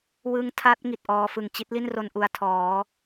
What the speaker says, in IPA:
w ɯ˦˥ ŋ tʰ a˦˥ t̚ ŋ i˨˩ t̚ ʔ ɔː˧ f ɯ˨˩ ŋ t͡ɕ i˦˥ t̚ l i˥˩ n r o˧ n ʔ u˧ a̯ tʰ ɔː˩˦

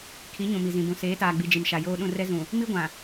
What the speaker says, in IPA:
kʰ i˨˦ ɲ ũ˨ m i˨ z ĩ˨ b ũ˨ s eː˨˦ t aː˨ ɡ͡b i˨ d͡ʒ i˨ m ʃ a˨ j oː˦ ɗ ũ˦˨ r ɛ˦ z ũ˨ | m i˦ ɡʷ ã˨

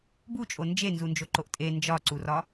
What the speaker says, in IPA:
b u t͡ʃʼ o n d͡ʒ e n z u n d͡ʒ o ǃ o ʔ tʼ e n d͡ʒ ɒ ǀ u r ɒ

